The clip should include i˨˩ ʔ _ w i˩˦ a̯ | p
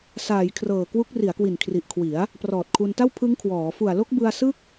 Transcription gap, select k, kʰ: kʰ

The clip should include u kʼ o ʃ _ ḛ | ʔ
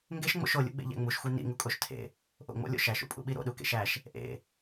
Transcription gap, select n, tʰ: tʰ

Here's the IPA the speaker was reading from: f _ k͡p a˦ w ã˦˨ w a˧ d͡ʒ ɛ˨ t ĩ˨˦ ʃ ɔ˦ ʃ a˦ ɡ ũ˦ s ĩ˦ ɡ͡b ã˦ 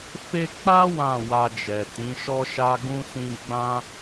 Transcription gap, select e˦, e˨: e˦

